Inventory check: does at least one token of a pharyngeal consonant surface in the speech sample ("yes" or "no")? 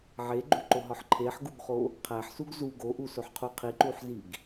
yes